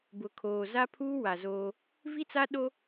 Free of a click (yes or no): yes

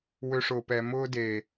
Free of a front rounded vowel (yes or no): no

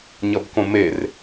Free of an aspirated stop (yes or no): yes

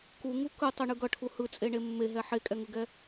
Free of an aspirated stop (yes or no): no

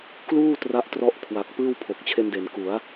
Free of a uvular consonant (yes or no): yes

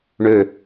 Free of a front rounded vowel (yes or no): no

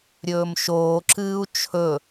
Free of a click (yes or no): no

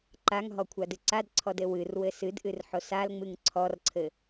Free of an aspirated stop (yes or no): no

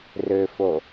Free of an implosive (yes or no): yes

